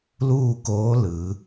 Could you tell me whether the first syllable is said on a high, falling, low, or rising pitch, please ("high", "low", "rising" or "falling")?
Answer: falling